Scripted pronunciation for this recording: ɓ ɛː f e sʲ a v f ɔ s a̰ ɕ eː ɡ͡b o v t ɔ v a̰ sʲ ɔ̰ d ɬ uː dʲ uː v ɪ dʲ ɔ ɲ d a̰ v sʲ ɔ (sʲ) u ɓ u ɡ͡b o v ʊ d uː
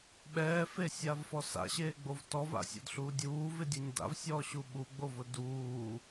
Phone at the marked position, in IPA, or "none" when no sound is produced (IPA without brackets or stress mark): ɕ